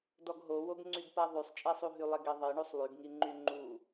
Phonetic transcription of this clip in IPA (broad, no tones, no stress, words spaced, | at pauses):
dɔɡɦowoɡŋ͡ǀyɡ paðˤysˤt͡ʃʼɛsˤu ɦylˠɛɡɛðˤi ɳusˤlˠyɡŋi ŋ͡ǃyŋ͡ǃu